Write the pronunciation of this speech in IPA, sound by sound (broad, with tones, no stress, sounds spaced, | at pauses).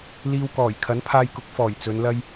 l iː˧ w k ɔː˨˩ j kʰ ɐ˨˥ n pʰ aː˧ j k ʊ˨˥ k̚ f ɔː˨˩ j t͡s ɵ˨˧ n l ɐ˥ j